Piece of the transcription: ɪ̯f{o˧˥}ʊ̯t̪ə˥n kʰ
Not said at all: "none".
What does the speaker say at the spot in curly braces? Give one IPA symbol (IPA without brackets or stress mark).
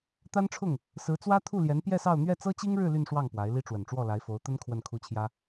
o˧˥